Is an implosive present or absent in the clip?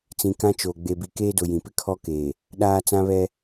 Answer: present